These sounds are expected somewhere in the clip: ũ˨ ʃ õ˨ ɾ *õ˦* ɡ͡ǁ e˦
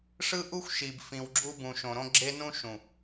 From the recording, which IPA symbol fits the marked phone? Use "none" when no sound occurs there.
õ˦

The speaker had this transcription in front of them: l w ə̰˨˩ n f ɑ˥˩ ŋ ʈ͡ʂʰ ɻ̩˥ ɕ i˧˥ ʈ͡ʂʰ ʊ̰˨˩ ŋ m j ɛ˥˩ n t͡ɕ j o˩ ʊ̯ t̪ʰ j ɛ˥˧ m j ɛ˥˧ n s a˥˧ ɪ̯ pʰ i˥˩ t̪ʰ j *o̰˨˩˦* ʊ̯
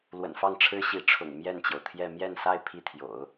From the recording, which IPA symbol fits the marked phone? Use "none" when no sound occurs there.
o̰˨˩˦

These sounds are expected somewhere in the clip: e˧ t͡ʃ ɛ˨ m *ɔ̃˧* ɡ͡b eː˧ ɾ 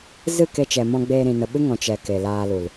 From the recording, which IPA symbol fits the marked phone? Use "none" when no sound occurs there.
ɔ̃˧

